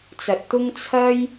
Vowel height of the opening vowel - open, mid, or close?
open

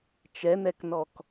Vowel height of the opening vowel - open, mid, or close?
mid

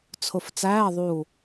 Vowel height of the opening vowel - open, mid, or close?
close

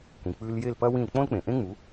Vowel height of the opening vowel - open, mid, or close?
close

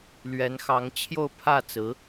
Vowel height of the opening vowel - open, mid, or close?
mid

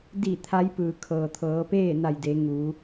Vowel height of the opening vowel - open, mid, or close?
close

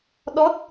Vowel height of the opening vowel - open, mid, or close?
mid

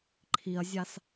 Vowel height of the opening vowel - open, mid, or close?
close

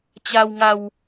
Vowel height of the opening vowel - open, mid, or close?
open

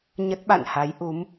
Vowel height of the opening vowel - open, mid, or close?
mid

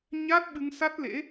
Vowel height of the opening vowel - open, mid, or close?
open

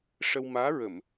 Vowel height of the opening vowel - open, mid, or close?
mid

